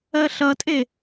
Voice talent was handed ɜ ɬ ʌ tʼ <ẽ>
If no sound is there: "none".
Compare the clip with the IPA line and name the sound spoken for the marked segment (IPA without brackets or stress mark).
e